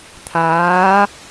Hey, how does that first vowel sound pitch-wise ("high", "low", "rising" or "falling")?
rising